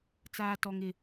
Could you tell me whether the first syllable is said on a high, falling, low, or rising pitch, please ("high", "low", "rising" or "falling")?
high